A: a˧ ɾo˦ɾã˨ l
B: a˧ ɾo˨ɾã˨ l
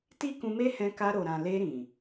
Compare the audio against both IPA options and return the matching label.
B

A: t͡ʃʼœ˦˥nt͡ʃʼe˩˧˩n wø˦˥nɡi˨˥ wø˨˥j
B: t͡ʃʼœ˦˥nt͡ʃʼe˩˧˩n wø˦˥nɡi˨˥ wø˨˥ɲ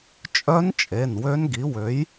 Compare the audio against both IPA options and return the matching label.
A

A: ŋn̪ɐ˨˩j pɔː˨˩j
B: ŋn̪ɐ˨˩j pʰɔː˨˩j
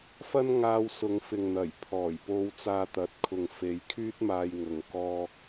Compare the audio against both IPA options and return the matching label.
B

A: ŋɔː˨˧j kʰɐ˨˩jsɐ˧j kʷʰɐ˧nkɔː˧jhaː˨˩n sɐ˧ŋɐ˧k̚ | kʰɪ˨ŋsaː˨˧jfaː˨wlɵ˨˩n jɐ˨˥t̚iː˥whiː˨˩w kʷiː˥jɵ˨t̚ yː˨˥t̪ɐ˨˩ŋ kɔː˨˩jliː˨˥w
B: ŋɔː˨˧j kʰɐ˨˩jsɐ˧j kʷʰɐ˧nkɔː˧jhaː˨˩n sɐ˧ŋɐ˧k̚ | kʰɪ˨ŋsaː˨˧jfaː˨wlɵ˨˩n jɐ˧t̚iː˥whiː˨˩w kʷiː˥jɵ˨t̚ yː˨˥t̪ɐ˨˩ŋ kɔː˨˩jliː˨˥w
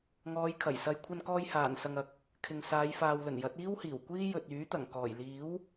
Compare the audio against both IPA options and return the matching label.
A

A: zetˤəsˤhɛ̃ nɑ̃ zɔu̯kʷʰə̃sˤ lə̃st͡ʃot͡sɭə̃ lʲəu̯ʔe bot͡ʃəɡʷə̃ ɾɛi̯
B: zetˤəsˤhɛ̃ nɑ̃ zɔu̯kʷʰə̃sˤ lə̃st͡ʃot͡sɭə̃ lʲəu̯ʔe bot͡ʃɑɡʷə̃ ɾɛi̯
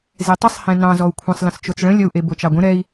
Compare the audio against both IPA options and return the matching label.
B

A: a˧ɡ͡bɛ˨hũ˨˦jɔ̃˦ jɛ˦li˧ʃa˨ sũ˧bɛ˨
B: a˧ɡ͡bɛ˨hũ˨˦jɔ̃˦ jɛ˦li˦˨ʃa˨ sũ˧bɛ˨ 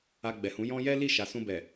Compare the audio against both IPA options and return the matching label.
B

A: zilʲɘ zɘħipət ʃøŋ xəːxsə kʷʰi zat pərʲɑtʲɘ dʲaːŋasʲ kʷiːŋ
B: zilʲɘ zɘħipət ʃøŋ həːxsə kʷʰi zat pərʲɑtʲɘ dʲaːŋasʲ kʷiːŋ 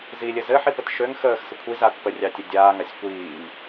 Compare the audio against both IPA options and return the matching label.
A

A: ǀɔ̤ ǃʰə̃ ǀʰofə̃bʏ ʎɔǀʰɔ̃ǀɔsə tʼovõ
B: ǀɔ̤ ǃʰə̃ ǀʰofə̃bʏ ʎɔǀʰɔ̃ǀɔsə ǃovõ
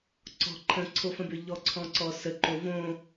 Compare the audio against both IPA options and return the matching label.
B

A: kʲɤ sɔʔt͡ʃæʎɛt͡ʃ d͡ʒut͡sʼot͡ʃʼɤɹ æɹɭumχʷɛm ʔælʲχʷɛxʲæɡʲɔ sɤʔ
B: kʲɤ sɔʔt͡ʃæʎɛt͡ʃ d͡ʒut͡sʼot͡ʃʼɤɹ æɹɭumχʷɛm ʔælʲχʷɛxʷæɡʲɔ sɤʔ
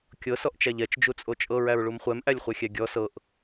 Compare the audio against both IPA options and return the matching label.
A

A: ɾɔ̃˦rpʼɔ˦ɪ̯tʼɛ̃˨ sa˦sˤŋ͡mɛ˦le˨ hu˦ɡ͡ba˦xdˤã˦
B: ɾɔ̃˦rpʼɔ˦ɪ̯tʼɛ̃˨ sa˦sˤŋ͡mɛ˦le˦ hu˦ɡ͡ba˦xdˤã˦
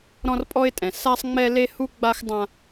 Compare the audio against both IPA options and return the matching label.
B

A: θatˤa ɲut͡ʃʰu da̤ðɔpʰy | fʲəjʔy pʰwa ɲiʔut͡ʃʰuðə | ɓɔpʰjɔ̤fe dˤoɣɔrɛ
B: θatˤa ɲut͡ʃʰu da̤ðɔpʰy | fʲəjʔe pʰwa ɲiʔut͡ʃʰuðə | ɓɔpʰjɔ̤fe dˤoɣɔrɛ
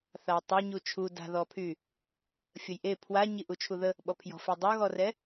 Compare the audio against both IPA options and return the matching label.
B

